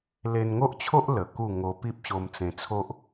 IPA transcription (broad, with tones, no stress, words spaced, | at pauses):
le˧nŋo˦ʔt͡ɕʰo˦ʔ lə˨˩ku˥˧ ŋo˧pi˦p̚ɕo˧mt͡sẽ˧ t͡sʰo˦ʔ